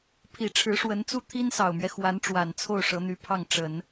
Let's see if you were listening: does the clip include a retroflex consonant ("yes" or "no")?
yes